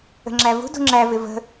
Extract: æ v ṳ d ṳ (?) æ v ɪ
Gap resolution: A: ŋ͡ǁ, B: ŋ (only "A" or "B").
A